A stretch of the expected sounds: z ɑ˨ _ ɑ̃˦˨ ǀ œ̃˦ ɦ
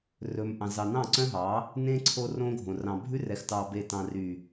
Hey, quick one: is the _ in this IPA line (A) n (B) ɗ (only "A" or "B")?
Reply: A